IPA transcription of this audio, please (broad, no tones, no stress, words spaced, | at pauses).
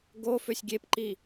ɡo føsʲɡʲepǃi